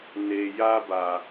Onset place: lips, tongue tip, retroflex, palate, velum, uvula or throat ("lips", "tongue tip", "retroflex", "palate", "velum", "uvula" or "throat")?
tongue tip